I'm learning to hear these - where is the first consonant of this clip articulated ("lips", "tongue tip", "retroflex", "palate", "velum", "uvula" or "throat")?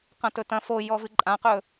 uvula